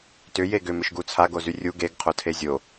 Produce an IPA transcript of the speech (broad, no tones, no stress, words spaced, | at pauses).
tʏ jeɡʏ mʏʃɡut͡sʰa ɡozyrʲu ɡeɡ qʰotʰezʲo